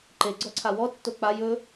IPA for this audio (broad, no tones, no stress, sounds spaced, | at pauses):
ǃ e ɡ͡ǀ ɔ ǀʰ a w ɔ tː o k͡p a j ɵ